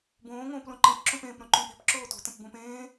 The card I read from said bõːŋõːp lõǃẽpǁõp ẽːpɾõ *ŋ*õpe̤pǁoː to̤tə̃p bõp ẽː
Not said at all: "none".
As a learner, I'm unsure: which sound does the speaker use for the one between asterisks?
ǃ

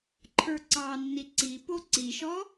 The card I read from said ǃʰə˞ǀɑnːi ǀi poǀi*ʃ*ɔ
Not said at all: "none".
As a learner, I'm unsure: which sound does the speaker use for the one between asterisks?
ʃ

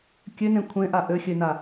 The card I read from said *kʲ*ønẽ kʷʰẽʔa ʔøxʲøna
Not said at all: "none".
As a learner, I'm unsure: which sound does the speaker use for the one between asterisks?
kʲ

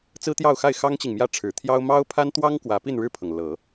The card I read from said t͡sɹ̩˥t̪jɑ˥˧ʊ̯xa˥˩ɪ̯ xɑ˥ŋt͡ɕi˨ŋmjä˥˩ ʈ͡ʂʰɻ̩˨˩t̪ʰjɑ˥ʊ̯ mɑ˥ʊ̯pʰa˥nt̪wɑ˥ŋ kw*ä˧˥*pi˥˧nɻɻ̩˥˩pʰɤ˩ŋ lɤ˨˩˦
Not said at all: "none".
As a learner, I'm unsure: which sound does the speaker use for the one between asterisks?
ä˧˥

